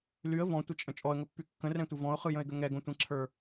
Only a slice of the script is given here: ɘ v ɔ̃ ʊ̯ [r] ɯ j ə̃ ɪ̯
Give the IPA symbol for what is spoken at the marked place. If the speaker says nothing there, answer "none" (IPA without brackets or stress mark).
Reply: χ